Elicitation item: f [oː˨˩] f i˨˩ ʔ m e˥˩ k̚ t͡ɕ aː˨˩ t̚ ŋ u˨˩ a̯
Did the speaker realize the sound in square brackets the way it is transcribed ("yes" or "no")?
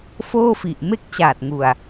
no